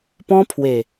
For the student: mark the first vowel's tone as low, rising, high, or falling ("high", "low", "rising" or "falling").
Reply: high